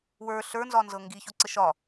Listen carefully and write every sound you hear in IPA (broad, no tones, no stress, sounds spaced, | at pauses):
w ə˞ ɬ ə˞ n z ɒ n z ɤ ŋ ɡ i ç o ǀ ə ʃ ɒ